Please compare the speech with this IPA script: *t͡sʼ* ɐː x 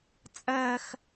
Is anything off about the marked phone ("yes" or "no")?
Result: no